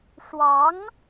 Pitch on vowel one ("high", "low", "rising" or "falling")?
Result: rising